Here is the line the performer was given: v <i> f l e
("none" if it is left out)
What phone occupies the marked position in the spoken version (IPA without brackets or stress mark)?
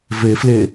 e